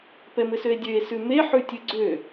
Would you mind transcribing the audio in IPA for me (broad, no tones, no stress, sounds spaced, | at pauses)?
p ɛ m ɘ s ø e̯ dʲ ø e̯ s ʉ m e ħ ʉ tʲ ʉ ɡ͡ǀ ø